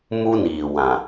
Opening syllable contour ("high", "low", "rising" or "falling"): high